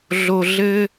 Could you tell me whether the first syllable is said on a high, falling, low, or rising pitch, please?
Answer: high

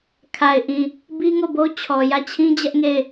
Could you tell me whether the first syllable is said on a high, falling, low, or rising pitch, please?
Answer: low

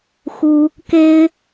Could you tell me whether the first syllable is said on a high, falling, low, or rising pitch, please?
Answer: high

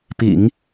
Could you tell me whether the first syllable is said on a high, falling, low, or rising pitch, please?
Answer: low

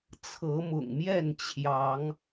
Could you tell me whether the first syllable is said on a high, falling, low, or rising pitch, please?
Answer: rising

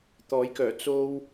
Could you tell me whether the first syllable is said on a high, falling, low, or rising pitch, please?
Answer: rising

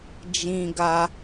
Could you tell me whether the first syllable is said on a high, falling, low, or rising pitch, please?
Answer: high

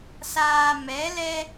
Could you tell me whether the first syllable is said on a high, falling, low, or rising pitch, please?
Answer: low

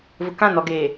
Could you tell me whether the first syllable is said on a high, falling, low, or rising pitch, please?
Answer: low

